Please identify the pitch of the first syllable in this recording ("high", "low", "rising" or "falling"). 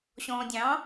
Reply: low